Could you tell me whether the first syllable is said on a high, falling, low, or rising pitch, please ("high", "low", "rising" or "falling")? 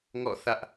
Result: falling